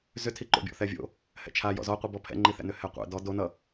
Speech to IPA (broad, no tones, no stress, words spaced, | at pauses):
zʏtʰi ǃo̰bʲɔ̰θɛvʲo̰ | hɛ̰t͡ʃʰa jɔ̰zɔqʷibɔ pʰɛ̰ŋ͡ǃiθɛ̰nʏ hɛqʷɛ̰ dɔ donʌ